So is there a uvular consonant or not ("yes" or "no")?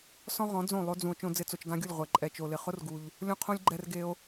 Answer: yes